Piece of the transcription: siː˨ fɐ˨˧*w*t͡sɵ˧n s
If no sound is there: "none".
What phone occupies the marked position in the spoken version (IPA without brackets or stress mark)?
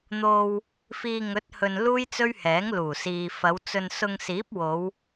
w